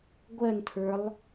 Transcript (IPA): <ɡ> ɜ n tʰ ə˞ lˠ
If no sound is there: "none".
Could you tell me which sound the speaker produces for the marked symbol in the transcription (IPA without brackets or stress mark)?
ɡʷ